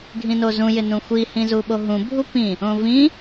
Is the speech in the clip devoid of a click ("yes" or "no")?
yes